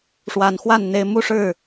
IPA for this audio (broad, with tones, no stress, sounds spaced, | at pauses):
ʂ w a˨˩ n x w a˥˩ n n̪ e˧˥ ɪ̯ m u˥˧ ʂ ɻ̩˥˩